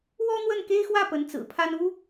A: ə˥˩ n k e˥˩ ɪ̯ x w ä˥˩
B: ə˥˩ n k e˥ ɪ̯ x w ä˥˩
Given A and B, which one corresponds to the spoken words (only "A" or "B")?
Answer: B